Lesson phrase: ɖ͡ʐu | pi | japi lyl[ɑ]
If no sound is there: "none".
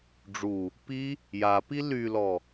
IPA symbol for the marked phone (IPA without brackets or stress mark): ɔ